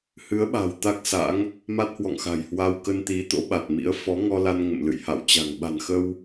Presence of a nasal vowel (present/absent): absent